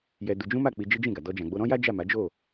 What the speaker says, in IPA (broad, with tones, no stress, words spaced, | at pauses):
jɛ˧du˧ d͡ʒũ˦ma˦˨ k͡pi˧d͡ʒi˦d͡ʒĩ˦˨ɡa˨ dɔ˧d͡ʒã˨ ɡ͡bo˧ɾɔ̃˦ja˦ d͡ʒa˦˨ma˨˦d͡ʒo˦˨